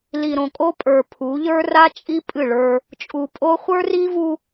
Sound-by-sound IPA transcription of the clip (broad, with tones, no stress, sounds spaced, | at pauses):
l i˨ ɾ õ˨ kʼ o˦ pʼ ə˞˨ pʰ u˨˦ ʎ ə˞˦ r a˦ t͡ʃʼ i˦ pʼ ɨ˦˨ ɭ ə˞˦ | t͡ʃʼ u˨ pʼ o˦ χʷ ə˞˦ r i˦ v u˦